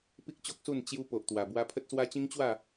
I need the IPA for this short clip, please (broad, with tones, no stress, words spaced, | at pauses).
pi˦k̚t͡ɕo˦k̚su˥˧n t͡ɕju˧ po˨ʔt̪wa˨˩bwa˧ pʰə˦t̚swa˦ t͡ɕĩ˦ŋt͡ɕwa˥˧